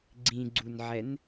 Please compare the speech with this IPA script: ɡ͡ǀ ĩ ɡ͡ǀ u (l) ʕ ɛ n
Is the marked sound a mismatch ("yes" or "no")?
yes